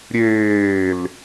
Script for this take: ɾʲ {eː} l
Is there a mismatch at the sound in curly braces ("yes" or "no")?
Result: no